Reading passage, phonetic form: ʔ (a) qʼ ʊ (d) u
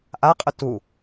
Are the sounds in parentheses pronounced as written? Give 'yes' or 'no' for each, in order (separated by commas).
yes, no